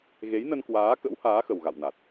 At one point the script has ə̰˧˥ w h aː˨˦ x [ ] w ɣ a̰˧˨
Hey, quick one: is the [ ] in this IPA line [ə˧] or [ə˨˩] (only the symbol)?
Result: ə˨˩